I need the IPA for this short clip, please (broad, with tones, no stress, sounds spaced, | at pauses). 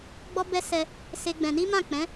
ɡ͡b ɔ˦ b ɛ˦ s ɛ˧ | s e˦ ɡ͡b ɛ̃˧ n i˦ m ã˦˨ k͡p ɛ̃˨˦